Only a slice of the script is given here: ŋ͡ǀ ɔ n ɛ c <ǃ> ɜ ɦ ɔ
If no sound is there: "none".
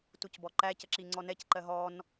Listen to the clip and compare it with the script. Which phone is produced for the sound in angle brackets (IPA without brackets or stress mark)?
ǃ